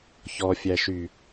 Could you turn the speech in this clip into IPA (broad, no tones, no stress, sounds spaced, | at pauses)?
ç ɔ fʲ æ ʃ y